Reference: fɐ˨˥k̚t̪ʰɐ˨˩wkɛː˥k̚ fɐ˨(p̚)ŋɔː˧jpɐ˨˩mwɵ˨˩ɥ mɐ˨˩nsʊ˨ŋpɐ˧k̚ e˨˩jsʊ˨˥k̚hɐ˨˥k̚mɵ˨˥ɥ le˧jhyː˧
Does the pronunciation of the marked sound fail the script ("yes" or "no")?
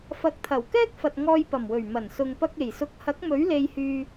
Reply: yes